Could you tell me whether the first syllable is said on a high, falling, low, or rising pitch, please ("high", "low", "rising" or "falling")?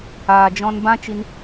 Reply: low